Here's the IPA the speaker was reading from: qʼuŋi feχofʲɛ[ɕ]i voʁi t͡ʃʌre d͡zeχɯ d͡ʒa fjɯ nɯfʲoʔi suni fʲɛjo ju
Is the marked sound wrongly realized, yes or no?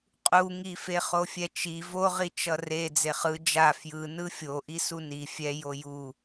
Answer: yes